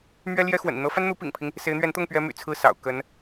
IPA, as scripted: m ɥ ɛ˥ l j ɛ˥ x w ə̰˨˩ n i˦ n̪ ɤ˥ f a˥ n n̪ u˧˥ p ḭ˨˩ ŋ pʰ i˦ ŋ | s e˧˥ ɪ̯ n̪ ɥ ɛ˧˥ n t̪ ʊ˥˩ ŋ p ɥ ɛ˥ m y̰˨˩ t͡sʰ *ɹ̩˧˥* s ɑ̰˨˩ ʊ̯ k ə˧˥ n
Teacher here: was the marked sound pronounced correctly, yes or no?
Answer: no